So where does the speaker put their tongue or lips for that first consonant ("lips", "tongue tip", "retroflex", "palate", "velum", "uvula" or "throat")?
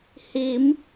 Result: throat